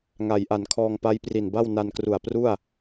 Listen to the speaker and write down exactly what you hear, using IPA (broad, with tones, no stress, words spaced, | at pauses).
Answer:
ŋa˩˦jʔa˩˦n kʰɔː˧ŋ pa˦˥jpri˨˩nba˥˩w na˧nkru˨˩a̯ pru˥˩a̯